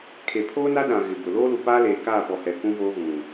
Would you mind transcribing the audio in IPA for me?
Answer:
kʰ e˨ pʰ oː˦ n a˦ ɗ ã˨ ɣ ɪ˨ b ʊ˨ l oː˦ l u˨ p aː˦ l eː˨ k aː˦˨ p ɔ˨ h ɛ˨ k ũ˦ v oː˦ ɣ ũ˨

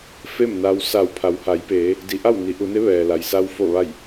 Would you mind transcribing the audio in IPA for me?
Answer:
f e˥˨ m n a˧ w s a˧˩ w pʰ a˩˧ w h a˩˧ j p eː˩˧ | d i˩˧ ʔ a˥˨ w n i˩˧ ʔ u˩˧ n e˧˥ ʋ ɛː˩ l a˩ j s a˧ w f o˧˩ ʋ a˧˩ j

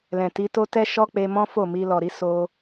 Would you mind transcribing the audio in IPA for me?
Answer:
l ɛ̃˨ t i˨˦ t o˦ t ɛ˦ ʃ ɔ˦ k͡p e˧ m ɔ̃˦ f o˦˨ m i˧ l ɔ˨ ɾ i˨˦ s o˧

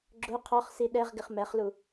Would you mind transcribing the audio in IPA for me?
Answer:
ɡ͡ǁ ʊ qʰ ɔ χ s i ɗ ɛ ʁ ɡ ɪ χ m ɛ χ l u

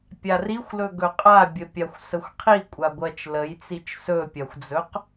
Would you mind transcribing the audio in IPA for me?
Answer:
pʲ a r i xʷ l ɵ ɡ ɵ qʼ a bʲ ə pʲ a xʷ s ə xʷ qʰ i kʷʼ a ɡʷ ɜ t͡ʃ l ə j t͡s i t͡ʃ s ɵ pʲ a xʷ d͡z ɵ q

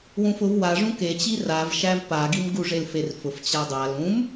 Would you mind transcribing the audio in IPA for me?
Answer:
w ũ f ʊ v w a ʐ ũ k e t͡ɕ i r a v ʃ æ v p a ɡ i m ɡ u ʐ e l f e r f ʊ f t͡ɕ a dˤ a l ũ m

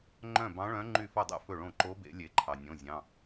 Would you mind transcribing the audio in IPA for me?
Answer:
ŋ͡ǃ œ̃˥˩ b ɑ̃˧˥ ɭ œ̃˧˥ ŋ͡ǃ y˥˩ f ɵ˥˩ dˤ ḛ˧˥ f ɵ˥˩ ɭ õ˥˩ ǃ o˧˥ b ḛ˨˩˦ lʲ e˨˩˦ ǃʰ ɑ˩ nʲ õ˩˧˩ zʲ ɑ̃˩˧˩

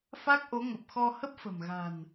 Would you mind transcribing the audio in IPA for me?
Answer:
f a˦˥ k̚ ʔ o˨˦ ŋ ə˨˩ p̚ x ɔ˧ h ə˦˥ p̚ f ə̤˨˩ m ɣ a̤˨˩ n

